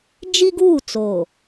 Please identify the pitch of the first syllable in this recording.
high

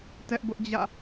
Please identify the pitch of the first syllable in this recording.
high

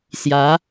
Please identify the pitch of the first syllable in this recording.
rising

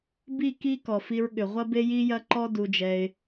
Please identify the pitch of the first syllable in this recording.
falling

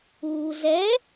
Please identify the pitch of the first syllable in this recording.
low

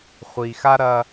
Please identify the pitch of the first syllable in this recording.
low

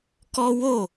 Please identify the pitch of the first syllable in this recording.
high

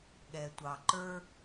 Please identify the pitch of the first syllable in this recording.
low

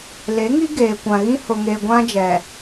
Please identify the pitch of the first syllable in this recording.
rising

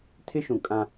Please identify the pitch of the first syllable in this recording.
high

